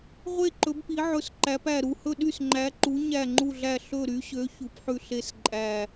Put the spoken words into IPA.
ʁʷ e˦˨ ǃ ɵ˨˦ b p i˨˦ ʕ ɵ˦˨ s ǃ æ˨˦ p æ˦˨ ɾ u˦˨ h ɵ˦˨ ɗ y˦˨ s ŋ͡ǃ æ˨˦ ǃ u˨˦ ɲ æ˦˨ ŋ͡ǃ u˦˨ ɮ æ˦˨ ɬ ɵ˦˨ ɾ y˨˦ ɕ ø˨˦ ç u˨˦ p ħ ʉ˦˨ ɬ e˦˨ s ǃʼ æ˦˨

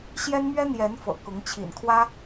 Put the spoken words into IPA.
ɕ j ɛ˥ n m ɥ ɛ˥ n̪ j ɛ˧˥ n f ɤ̰˨˩ k ʊ˧˥ ŋ t͡ɕʰ ḭ˨˩ n kʰ w ä˥

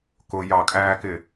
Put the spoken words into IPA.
k ʊ j ɑ kʼ æː k ɪ

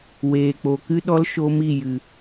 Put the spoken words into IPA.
w eː˨ k͡p o˨ k ɨ˦ ɗ ɔ˦ l ʃ o˦ m i˦˨ j ɨ˨

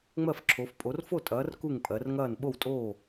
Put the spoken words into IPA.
ŋ͡m ɜ˥˨ f ǁʰ o˨˦ f pʼ o˨˦ r f o˥˨ tʼ ɐː˨˦ r k u˥˨ ŋ pʼ ɜ˨˦ r ŋ ɐː˥˨ n ɓ o˥˨ w tʼ oː˥˨

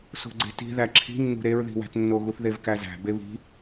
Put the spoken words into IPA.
s o̤ ɡ͡ǀ e̤ t i̤ ð æ ǁʰ i̤ nː ṳ ɾ e ɹ ð i̤ w æ̤ t nː o ɣ u θ ð e v k æ z æ̤ b e β i̤

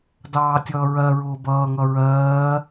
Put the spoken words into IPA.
d ɑː tʲ ʌː ɹ ɜ ɹ ʊː b ʌː ŋ ʌ ɹ ɜː

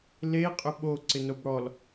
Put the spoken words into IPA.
l e qʼ ʏ ɓ o ǀ ɪ n o b ɽ ɔ l

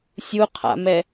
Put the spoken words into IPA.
sʲ u qʰ a̰ m ɛ

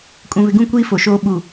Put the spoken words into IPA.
kʼ ũ˨ β ɪ˨ ɡ ũ˦˨ kʷ iː˦ f o˨ ʃ oː˦ ɓ u˨

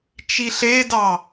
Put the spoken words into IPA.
t͡ʃ i ɬ e d ɑ

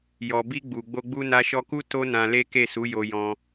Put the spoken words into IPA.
j ɔ˨ b i˧ ɡ͡b u˨ ɡ͡b o˧ ɡ͡b u˧ n a˧ ʃ ɔ˧ k u˦ t o˦ n ã˧ l e˦ k e˦˨ s u˨˦ j o˧ j ɔ̃˦

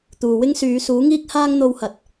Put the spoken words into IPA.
t̪ uː˨ w ɪ˥ ŋ s yː˨˧ s uː˨˥ ŋ iː˥ k̚ h aː˥ ŋ n̪ o˧ w h ɐ˨ t̚

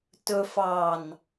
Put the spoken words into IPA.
t ɵ f ɑ n

